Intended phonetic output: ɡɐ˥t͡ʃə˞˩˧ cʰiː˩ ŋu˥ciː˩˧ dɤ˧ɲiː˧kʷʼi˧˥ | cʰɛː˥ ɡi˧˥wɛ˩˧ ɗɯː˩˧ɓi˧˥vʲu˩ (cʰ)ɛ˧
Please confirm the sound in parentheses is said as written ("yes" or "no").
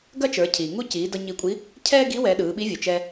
no